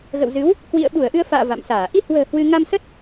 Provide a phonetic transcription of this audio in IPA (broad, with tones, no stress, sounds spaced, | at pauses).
ɣ ə̰˧˨ w z ɨ˨˦ w | k w ḭ˧˨ ə̯ ɓ u˧˩ ə̯ ʔ ɨ˧ ə̯ f a̰ː˧˨ v a̰˧˨ m s aː˧˩ ʔ i˧ h w ə̤ː˨˩ h w ɨ˧ ŋ a˧ m s ə˦˥ t̚